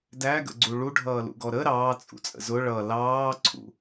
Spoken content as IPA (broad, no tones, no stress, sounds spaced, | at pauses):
d æ ɡ ə̰ ɡ͡ǀ u ɭ u ɖʱ ʌː l ṵ ɡ ɔ ɾ ə ɾ ɑː t͡sʼ ṵ t͡sʼ ə̰ z ʊ ɭ ʌ l ɑː ǀʰ ṵ